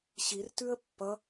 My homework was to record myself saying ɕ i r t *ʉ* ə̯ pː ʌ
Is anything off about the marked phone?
no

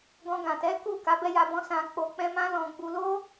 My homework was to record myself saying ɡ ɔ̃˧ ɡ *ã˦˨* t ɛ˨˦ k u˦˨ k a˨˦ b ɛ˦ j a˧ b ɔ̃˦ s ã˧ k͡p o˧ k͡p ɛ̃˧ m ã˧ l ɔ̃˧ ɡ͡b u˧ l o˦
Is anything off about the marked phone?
yes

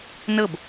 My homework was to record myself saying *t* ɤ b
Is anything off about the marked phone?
yes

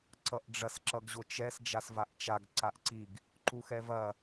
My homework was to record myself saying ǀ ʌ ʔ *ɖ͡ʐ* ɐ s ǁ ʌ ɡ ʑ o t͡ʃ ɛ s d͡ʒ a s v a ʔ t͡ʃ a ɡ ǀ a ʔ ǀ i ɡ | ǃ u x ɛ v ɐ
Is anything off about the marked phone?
no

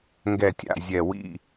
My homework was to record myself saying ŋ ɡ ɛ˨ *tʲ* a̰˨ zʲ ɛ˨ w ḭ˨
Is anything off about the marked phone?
no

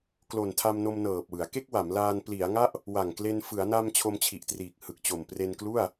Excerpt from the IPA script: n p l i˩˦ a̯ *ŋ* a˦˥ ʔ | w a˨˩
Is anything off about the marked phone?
no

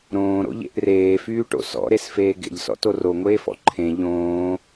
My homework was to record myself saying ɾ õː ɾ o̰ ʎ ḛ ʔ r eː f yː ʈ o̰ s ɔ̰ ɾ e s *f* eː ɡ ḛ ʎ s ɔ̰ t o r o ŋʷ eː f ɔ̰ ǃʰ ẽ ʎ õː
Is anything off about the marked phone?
no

